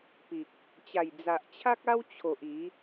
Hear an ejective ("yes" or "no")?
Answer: no